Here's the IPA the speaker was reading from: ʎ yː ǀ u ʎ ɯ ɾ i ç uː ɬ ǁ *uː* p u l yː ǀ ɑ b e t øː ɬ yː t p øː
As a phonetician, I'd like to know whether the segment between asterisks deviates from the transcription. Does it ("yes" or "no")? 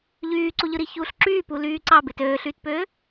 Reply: yes